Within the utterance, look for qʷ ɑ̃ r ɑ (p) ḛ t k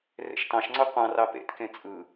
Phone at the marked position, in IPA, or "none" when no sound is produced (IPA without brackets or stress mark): p